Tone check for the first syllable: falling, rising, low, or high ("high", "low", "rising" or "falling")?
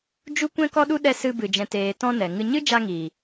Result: high